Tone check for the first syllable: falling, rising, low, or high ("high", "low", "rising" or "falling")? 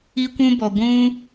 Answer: high